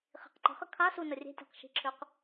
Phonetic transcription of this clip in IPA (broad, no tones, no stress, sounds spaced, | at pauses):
χ i̤ q ǃ ə̤ χ ə kʰ a s u n ə rʲ e̤ tʲ a̤ q ʃ i̤ ǁʰ ø q